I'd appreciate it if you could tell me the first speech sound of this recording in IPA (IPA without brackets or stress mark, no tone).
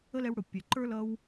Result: ə